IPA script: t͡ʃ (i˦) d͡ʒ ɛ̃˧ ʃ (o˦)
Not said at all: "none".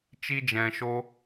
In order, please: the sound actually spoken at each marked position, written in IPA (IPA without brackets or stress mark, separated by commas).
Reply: i˦, o˦